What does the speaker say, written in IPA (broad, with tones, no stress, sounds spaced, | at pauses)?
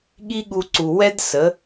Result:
ɠ i˦ ɠ u˧ ǀ u˨ w ɛ˦ d s ə˨˦